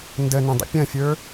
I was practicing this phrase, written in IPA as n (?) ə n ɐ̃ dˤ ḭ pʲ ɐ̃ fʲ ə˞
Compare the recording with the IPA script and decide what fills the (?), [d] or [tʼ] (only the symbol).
d